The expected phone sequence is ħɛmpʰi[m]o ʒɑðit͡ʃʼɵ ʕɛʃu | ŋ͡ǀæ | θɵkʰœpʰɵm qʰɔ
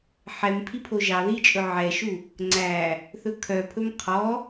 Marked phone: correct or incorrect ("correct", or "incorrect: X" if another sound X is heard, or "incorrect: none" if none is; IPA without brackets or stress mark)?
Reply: incorrect: pʰ